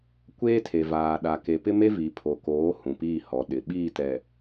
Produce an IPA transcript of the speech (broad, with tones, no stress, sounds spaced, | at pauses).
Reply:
kʷ eː˦ tʰ e˨ v aː˨ ɗ a˨ k e˨ p ɪ˦ m e˦ v i˨ pʰ o˨ k oː˨˦ h ũ˨ p iː˦˨ h ɔ˨˦ ɗ ɪ˨ ɓ iː˦˨ t ɛ˨